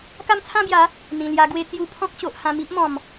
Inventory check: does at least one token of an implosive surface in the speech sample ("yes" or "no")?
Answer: no